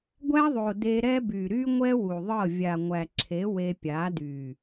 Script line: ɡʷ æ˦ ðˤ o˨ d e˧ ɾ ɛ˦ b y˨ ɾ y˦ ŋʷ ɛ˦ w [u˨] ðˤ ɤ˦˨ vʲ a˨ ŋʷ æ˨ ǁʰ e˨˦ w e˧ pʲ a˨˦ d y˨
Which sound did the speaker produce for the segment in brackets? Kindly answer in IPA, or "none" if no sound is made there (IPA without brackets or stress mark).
u˨